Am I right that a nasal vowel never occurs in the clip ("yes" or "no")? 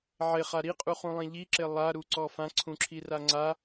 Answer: no